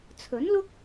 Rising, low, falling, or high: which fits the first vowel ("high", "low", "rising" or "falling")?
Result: rising